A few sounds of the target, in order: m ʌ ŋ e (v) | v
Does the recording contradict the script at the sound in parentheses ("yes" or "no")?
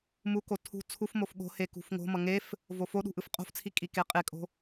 yes